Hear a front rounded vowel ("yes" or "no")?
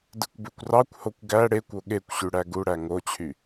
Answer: yes